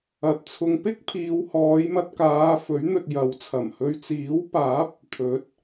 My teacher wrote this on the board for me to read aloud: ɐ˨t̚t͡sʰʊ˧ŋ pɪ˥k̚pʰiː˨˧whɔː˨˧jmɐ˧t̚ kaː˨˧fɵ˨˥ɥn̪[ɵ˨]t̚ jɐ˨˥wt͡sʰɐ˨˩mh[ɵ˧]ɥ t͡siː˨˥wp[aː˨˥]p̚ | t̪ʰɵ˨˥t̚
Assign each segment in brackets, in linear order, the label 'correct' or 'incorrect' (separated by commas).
correct, correct, correct